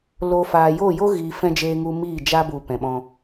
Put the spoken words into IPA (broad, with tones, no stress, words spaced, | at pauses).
lo˨ faː˨joː˦˨jo˦ ɣiː˨fɛ̃˧ d͡ʒeː˧ŋu˧ miː˦˨d͡ʒa˦bu˨ pɛ̃˨ɓɔ̃˧